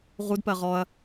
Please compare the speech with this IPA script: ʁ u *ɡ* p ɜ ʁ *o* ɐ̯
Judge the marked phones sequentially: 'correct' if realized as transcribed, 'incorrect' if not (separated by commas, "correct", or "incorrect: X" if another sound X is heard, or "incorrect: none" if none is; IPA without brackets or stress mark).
incorrect: d, incorrect: ɔ